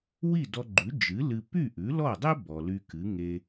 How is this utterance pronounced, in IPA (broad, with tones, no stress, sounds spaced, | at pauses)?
w i˥˩ d ɔ˧ ɡ͡ǃ ʉ˩˥ d͡ʒ ɨ˩˥ l ɨ˧ p y˥˩ ʔ ʉ˩˥ l ɔ˥˩ dˤ e˥ b ɔ˩ l y˧ k ɨ˩˥ ŋ e˧